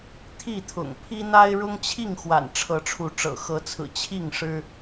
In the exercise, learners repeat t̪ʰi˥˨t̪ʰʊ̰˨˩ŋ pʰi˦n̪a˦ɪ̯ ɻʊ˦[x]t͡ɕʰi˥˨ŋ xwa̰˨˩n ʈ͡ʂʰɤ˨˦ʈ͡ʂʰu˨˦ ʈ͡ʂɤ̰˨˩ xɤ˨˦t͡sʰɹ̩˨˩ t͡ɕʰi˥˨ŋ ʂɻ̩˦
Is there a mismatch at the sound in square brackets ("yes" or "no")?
yes